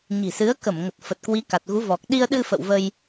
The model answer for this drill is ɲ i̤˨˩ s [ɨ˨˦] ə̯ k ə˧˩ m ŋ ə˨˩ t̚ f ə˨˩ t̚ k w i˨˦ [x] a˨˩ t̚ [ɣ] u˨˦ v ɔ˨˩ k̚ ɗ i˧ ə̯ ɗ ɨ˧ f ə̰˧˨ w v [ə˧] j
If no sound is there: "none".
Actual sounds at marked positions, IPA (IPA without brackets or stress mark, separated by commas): ɨ˨˦, k, ɣ, ə˧